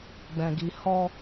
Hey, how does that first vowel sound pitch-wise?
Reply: low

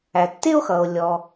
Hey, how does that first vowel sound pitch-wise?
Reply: low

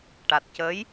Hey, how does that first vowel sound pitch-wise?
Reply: low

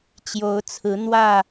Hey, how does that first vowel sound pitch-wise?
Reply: rising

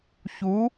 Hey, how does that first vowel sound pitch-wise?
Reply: rising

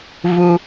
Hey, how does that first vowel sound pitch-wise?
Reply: low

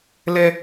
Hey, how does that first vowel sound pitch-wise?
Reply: high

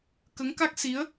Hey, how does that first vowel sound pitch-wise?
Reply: rising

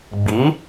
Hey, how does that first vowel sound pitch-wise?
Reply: rising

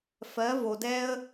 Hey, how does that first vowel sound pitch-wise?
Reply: rising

